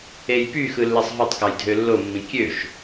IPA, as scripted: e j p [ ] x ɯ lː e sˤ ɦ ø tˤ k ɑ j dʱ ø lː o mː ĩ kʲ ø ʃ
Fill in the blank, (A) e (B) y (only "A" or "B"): B